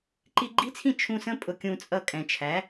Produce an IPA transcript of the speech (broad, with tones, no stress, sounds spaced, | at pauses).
ǃ i˧ ɡ͡ǃ i˦˥ t͡sʰ ĩ˥˩ t͡ʃʰ ũ˧ s ə̃˦˥ pʼ ʊ˧ kʲ ũ˧ t͡sʼ ʌ˥˩ kʼ ɛ̃˨˩ t͡ʃʰ æ˩˥